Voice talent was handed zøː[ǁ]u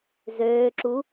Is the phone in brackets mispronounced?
no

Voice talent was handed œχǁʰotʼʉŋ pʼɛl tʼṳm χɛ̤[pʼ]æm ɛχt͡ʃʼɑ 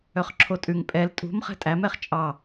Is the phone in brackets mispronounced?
yes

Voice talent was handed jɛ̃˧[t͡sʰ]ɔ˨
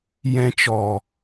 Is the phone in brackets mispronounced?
yes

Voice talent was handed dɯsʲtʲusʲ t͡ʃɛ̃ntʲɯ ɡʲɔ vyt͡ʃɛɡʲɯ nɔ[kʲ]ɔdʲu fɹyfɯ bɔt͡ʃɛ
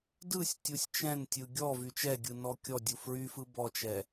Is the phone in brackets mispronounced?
no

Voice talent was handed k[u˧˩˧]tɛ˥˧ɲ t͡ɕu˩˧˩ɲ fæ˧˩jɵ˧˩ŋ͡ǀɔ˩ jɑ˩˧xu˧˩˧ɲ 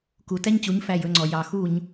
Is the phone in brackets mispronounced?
yes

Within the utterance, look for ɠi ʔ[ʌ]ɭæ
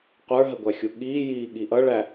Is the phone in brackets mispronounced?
no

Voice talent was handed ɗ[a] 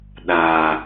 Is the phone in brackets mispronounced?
no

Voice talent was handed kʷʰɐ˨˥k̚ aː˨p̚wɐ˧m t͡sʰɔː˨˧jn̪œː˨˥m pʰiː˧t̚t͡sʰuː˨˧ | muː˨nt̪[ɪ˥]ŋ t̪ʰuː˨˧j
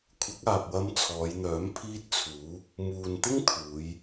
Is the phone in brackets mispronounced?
no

